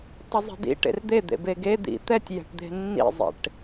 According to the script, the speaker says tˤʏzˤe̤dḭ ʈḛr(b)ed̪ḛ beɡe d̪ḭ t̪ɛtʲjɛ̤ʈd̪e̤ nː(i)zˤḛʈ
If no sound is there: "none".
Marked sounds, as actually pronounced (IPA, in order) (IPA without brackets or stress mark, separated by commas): d̪, ḭ